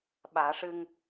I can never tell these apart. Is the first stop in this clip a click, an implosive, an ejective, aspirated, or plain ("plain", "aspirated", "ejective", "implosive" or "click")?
implosive